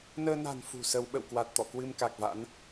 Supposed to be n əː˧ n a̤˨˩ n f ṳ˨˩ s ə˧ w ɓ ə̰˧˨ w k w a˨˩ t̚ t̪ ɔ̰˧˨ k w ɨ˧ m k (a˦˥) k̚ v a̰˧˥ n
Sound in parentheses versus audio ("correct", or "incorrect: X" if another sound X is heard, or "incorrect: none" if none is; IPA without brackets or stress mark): incorrect: a˨˩